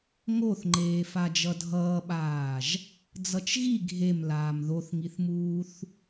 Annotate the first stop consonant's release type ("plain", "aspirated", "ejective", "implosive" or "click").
click